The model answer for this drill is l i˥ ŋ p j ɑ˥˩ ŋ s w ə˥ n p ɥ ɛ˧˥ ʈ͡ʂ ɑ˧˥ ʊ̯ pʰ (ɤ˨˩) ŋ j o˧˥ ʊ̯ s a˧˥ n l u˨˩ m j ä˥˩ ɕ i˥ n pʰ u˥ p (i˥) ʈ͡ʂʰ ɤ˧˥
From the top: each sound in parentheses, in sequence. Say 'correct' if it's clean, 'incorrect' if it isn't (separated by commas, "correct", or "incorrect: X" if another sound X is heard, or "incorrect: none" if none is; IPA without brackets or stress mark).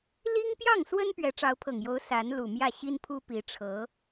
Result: correct, incorrect: i˧˥